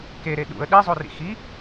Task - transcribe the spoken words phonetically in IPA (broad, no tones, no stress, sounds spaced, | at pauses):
k e ɾ e ɗ ṵ ə̯ ɗ i zˤ o r ḭ x i